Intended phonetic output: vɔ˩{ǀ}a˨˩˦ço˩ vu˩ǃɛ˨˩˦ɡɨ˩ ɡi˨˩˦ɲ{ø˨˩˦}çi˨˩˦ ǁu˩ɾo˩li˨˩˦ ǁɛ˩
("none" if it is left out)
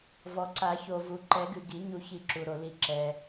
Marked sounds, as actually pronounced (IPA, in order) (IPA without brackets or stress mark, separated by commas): ǀ, u˨˩˦